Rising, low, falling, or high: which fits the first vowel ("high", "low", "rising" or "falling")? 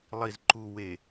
low